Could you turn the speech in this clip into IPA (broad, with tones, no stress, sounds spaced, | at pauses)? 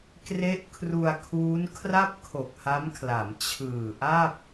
k r e˦˥ ʔ kʰ r u˧ a̯ kʰ uː˦˥ n kʰ r a˥˩ p̚ kʰ o˨˩ k̚ h a˦˥ m kʰ l a˩˦ m t͡ɕʰ ɯː˨˩ ʔ a˥˩ p̚